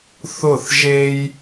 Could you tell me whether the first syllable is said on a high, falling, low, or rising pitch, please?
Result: falling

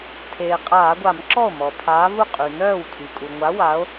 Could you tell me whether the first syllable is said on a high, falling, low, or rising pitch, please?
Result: low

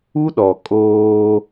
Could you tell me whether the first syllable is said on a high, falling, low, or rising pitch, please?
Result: high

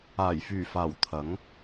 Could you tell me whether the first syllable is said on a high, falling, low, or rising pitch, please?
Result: low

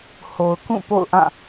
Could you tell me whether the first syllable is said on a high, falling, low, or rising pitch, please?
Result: low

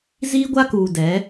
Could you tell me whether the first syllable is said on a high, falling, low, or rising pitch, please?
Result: high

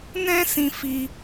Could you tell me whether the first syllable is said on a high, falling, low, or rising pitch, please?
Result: high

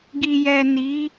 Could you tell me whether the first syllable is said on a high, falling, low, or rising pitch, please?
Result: low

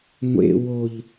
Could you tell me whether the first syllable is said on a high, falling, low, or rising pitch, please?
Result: high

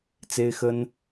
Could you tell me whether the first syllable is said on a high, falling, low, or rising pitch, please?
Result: high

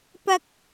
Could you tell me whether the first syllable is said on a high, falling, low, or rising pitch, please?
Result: high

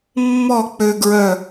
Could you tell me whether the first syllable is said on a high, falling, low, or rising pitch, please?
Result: falling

